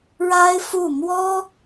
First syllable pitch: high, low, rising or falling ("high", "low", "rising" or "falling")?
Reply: high